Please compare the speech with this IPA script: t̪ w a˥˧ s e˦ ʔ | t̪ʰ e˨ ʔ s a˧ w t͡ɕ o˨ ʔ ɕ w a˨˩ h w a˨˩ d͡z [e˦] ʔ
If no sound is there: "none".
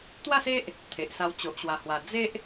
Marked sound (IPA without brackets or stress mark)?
e˦